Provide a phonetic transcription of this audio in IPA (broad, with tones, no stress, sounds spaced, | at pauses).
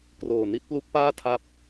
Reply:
k r oː˨˩ n i˥˩ t̚ p l u˦˥ k̚ p aː˥˩ tʰ a˥˩ p̚